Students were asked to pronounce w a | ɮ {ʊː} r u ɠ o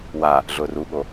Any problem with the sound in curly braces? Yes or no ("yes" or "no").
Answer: no